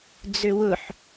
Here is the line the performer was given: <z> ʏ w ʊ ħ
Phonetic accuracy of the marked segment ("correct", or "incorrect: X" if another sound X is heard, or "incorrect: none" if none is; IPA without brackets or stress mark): incorrect: d͡z